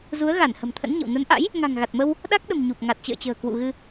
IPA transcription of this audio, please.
z u˨˦ ə̯ ɣ a˧˩ n h ə̤˨˩ m t̪ʰ ə̰˧˥ n ɲ ə̰˧˨ w n ə˨˦ n ʔ a̰˧˥ j | ŋ a̤˨˩ ŋ ɣ a˨˩ t̚ m ə˧ w | ɗ a˦˥ k̚ ɗ ə̤˨˩ m ɲ u˨˩ p̚ ŋ a˨˩ t̚ t͡ɕ ə̰ː˧˨ t͡ɕ ə̤ː˨˩ k w ṵ˧˨ ɣ ɨ˧

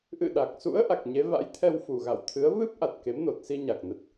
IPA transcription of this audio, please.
ʔ ɨ̰˧˨ ɗ a˨˩ k̚ s ṵ˧˥ ə̯ ʔ a˨˩ k̚ ɲ e˨˦ v a̰˧˥ j t̪ʰ ɛ˧ w f u˨˩ ɣ a̰˧˨ w t̪ʰ ɨ˨˦ ə̯ v ɨ˦˥ p̚ ʔ a˨˩ t̚ k e˨˦ m n o˨˩ t̚ s i˧ ɲ a˨˩ k̚ n ə˨˩ t̚

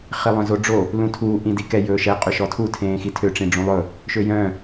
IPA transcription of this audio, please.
χ i lˠ œ̃ z o ɖ͡ʐ o | l ũ tʰ uː ʔ ĩ d i k ɛ j ɵː ʃ ɛ qʼ ø ʃ ɔ tʰ u tʰ ẽː x i tʰ ø ʈ͡ʂ ĩ ɖ͡ʐ ũ lˠ ɵ | ʃ ø j œ̃

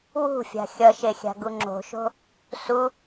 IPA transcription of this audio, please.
w ṳ fʲ a̤ xʲ ʌ ʃ e xʲ a̤ ɡ u ŋ͡ǁ o̤ ʃ o̤ | s u

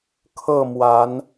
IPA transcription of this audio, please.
kʰ ɤ˥˨ m w a˨˦ n

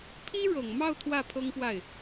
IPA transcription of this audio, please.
pʰ i˥ ɻ ɤ˨˩ ŋ m ɑ˥˧ ʊ̯ t̪ʰ w ä˥˩ pʰ ɤ˥ ŋ p w a˥˩ ɪ̯

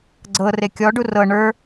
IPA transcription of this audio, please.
ɡ͡ǀ ɤ r e kʲ ɔ ɖ u r ɤ ɳ ə˞

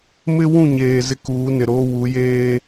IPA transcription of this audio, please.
m ɪ˦ w ũ˦˨ ɲ eː˨ z ɪ˦ k uː˨˦ n ɪ˨ ɾ oː˦ w u˨˦ j eː˦

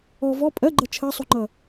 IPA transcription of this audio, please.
ɔ v ɔ pʼ ɜ ɡ͡ǃ ʌ t͡ʃʰ ɜ sˤ u ŋ͡ǃ ʌ

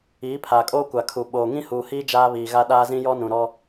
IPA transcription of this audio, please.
iː˨˦ pʰ aː˨ kʼ oː˦ kʷ a˨ kʰ u˨ ɓ oː˨ ŋ ĩ˦ h uː˨ h iː˦ d͡ʒ aː˦ β iː˨ ɣ a˦ ɗ aː˦ z ĩ˦ j ɔ˦ n ũ˨ ɾ ɔ˦

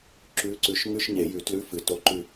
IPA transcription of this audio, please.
ǁ ʉ˨˥ ǀ ʉ˨˩˦ ʃ ŋ ʉ˧˥˧ ʃ ɲ e˨˩˦ j ʉ˨˩˦ t l ʉ˧˥˧ f ɨ˨˩˦ t o˧˥˧ ǃ ʉ˦˨

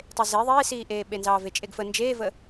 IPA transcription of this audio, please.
tˤ e z e ðˤ eː s iː ʔ eː ɓ e n z ɑː v e t͡ʃʼ e ɡ f ə n d͡ʒ eː v ə

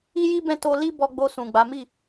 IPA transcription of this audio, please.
i˦ j i˦ b ɛ̃˦˨ t o˧ l i˦ b ɔ˧ ɡ͡b o˧ s ũ˨ ɡ͡b a˨˦ m i˦˨

